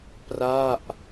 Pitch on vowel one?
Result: falling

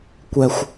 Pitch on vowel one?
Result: low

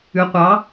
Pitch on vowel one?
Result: rising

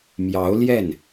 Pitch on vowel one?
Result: rising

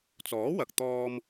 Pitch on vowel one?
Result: rising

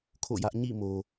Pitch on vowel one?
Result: falling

